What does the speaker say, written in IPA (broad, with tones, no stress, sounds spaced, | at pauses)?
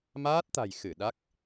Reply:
m aː˦˥ t̚ t̪ a̤˨˩ j x ɨ˧˩ ɗ a˦˥ k̚